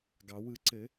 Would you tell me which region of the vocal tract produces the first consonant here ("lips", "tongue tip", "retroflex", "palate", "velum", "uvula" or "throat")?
velum